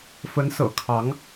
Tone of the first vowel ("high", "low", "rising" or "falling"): rising